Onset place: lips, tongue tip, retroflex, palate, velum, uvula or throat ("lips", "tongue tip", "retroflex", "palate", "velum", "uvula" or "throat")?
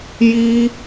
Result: palate